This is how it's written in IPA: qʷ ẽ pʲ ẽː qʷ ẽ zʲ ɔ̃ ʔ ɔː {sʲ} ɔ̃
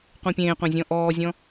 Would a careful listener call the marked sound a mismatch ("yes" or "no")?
yes